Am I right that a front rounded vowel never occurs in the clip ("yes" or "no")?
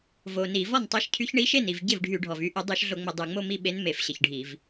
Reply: no